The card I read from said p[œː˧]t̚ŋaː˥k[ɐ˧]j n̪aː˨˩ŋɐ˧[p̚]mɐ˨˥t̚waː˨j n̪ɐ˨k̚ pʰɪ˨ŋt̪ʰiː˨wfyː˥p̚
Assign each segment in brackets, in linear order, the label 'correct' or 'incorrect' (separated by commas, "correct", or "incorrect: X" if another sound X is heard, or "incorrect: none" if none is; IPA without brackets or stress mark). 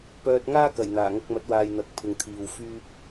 correct, incorrect: ɐ˨˩, incorrect: k̚